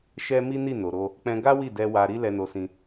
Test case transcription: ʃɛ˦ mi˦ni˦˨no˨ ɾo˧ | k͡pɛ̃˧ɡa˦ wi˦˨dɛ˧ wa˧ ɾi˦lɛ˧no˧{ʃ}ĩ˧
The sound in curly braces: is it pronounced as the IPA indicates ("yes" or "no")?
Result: no